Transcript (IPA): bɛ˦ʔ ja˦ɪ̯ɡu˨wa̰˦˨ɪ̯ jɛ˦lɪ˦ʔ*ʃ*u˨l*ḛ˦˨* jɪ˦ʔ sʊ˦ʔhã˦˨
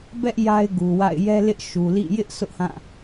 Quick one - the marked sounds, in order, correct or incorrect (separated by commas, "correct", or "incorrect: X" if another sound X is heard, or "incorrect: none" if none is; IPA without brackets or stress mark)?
correct, incorrect: ḭ˦˨